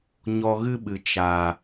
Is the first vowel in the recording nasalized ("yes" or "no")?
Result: no